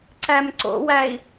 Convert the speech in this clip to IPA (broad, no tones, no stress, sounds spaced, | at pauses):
ǀ æ m ǀ o̰ w æ i̯